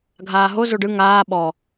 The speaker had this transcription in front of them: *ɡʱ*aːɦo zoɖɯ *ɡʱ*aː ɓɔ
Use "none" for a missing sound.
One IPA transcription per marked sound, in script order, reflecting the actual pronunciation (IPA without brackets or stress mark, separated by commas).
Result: ɡʱ, ŋ